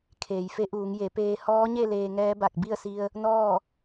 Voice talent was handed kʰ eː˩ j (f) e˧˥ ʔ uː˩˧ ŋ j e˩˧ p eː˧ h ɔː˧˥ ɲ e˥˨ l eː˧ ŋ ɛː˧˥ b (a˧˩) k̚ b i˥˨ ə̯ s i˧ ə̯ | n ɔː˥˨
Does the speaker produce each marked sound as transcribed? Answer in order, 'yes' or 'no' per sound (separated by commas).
yes, yes